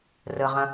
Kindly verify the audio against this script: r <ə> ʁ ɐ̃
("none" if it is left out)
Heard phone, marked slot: ə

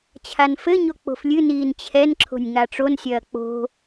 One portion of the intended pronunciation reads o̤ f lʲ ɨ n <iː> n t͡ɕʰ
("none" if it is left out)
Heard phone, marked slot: iː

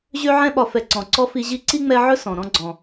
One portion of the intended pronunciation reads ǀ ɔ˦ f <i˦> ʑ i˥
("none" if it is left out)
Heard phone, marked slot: i˦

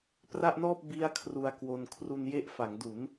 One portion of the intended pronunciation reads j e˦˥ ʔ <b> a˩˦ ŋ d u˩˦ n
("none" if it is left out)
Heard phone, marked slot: f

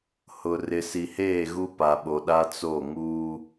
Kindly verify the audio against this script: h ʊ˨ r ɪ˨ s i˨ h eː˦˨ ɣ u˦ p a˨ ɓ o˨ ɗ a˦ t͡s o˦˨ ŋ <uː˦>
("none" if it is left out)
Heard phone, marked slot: uː˦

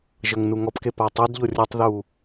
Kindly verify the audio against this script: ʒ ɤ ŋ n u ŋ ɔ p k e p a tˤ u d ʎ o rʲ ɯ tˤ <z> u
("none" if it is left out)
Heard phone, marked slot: ð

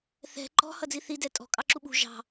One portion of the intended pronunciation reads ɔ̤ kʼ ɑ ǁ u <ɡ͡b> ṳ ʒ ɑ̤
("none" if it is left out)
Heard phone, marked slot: ɓ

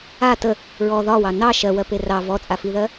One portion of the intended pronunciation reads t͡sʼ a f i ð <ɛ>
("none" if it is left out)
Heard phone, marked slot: ɜ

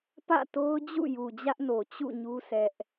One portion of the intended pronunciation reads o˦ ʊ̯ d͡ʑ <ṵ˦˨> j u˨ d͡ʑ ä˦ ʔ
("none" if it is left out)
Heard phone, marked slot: ṵ˦˨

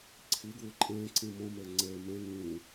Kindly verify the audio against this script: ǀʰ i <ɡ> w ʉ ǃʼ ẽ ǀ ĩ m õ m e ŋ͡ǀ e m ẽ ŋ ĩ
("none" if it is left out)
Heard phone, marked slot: ɡ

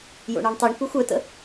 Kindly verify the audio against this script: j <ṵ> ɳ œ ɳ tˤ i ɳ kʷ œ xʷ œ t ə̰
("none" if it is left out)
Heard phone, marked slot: o̰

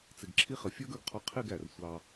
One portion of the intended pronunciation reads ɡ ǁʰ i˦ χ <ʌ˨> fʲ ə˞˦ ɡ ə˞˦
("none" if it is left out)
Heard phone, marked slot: ə˨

